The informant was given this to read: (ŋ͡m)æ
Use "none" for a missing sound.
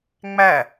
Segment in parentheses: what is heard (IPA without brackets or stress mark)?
ŋ͡m